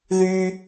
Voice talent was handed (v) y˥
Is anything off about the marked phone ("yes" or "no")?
yes